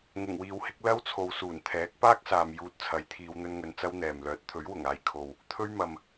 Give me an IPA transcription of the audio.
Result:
ŋ ʊ˨˩ ŋ w iː˨ w h ɪ˨˥ k̚ l ɐ˥ w t͡sʰ o˨ w s uː˨˩ n t̪ʰ ɛː˨˥ k̚ p aː˥ k̚ s aː˨ m j uː˧ t̚ t͡sʰ ɐ˨˥ j t̪ʰ iː˨˧ w n̪ ɵ˥ n ŋ ɵ˧ n t͡s ɐ˥ w n̪ ɛː˨ m l œː˨˥ t̚ t̪ʰ ɵ˨˥ ɥ w ʊ˨˩ ŋ aː˨ j kʰ o˨ w | t̪ʰ ɵ˥ ɥ m ɐ˨ m

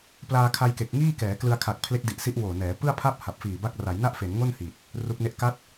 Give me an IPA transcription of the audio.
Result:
p l aː˧ kʰ a˧ j k e˨˩ k̚ ŋ iː˥˩ k ɛː˩˦ k l ɯ˧ a̯ kʰ a˨˩ k̚ pʰ l e˦˥ k̚ d i˨˩ ʔ s i˦˥ ʔ w oː˨˩ n ɛː˩˦ p ɯ˥˩ a̯ pʰ a˥˩ p̚ h a˨˩ p̚ f iː˨˩ b a˦˥ k̚ r a˩˦ j n a˥˩ ʔ f e˩˦ n ŋ o˥˩ n h i˨˩ t̚ | r u˦˥ k̚ n e˥˩ ʔ k a˦˥ t̚

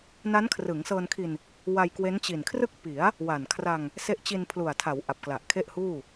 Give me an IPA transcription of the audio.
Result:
n a˦˥ n kʰ r ɯ˩˦ ŋ s ɤː˧ n kʰ i˧ n | w a˧ j k w e˦˥ n t͡ɕ i˨˩ n kʰ r ɯ˥˩ k̚ p i˩˦ a̯ | w a˨˩ n kʰ r a˧ ŋ | s e˦˥ ʔ t͡ɕ i˧ n pʰ l u˨˩ a̯ tʰ a˩˦ w ʔ a˨˩ p̚ k l a˨˩ ʔ kʰ e˥˩ ʔ h uː˥˩

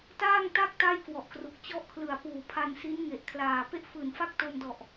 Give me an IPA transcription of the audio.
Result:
t aː˥˩ ŋ t a˥˩ k̚ t a˥˩ j k w ɔ˨˩ ʔ k r u˨˩ k̚ t͡ɕ ɔ˦˥ ʔ kʰ l ɯ˨˩ a̯ p uː˨˩ pʰ a˧ n s i˦˥ n ŋ e˨˩ ʔ kʰ l aː˨˩ p e˥˩ ʔ f ɯː˨˩ n f a˥˩ k̚ t o˧ m d ɔ˨˩ ʔ

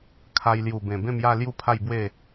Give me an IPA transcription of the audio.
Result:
kʰ a˧ j l j u˨˩ b ẽ˨˩ b ẽ˥˧ m j a˥˧ l j u˦ pʰ a˥˧ j b w e˥˧

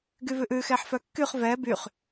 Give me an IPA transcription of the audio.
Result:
ɡ y v ʉ ʔ ʉ x ɛ ħ f œ kː y χ v ɛ b y χ

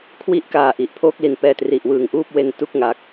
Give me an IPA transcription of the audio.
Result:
kʰ w i˦˥ ʔ k aː˨˩ ʔ i˨˩ ʔ pʰ oː˥˩ k̚ l i˨˩ n p ɛː˧ t r i˨˩ ʔ w ɯː˨˩ ŋ ʔ uː˥˩ p̚ w e˧ n t u˥˩ k̚ ŋ a˨˩ k̚

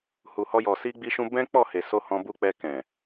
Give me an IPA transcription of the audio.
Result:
h u˨ h ɔ˧ j ɔ˨ s i˧ ɡ͡b i˧ ʃ ũ˧ b ɛ̃˦ k͡p ɔ˦˨ h e˨ s o˧ h ɔ̃˧ b u˧ k͡p ɛ˧ k ɛ̃˨

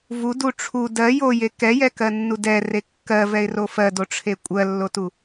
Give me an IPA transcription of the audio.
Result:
v u d u ʈ͡ʂʰ u d ɜ j o j e k ɛ j ɛ k ɜ nː u d ɛ r e kː ɜ v ɛ ɪ̯ r o f ɜ d o ʈ͡ʂʰ e kʷʼ ɜ lː o t u

